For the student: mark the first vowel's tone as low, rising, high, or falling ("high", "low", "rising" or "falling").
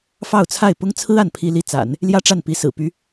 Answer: falling